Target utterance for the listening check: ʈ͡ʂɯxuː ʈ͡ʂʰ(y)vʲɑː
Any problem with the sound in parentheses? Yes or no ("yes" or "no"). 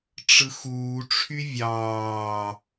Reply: no